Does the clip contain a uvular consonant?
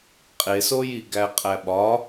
yes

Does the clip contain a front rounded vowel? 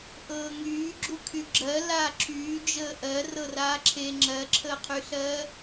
yes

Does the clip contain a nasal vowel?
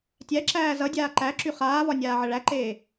no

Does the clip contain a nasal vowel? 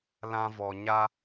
yes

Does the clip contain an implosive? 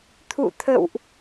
no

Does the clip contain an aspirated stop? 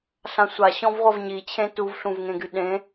yes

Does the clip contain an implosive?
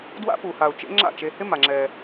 no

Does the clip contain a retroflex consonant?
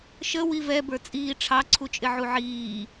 yes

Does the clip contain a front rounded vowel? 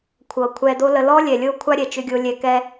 yes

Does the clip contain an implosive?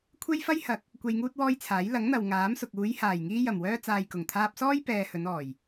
no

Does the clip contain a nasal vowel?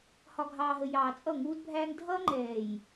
no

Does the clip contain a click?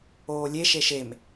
no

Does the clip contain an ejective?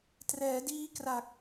no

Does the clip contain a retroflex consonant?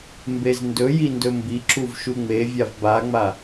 no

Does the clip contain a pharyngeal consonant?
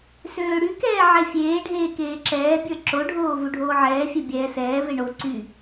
yes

